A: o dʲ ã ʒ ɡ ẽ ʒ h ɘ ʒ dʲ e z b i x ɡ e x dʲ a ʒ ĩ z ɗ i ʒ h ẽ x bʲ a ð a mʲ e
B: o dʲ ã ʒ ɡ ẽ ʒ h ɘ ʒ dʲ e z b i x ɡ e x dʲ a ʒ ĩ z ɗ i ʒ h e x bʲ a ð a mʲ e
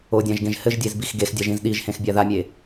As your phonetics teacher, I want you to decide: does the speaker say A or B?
A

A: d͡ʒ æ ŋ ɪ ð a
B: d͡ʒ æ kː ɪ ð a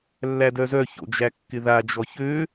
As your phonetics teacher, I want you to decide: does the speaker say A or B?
B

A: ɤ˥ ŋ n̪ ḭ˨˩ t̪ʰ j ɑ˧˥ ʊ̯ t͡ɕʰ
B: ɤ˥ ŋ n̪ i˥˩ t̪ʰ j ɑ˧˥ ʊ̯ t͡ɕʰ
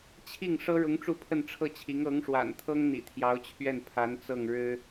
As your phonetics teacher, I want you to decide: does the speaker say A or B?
A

